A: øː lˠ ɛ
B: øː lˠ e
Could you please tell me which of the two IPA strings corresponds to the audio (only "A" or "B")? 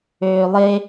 B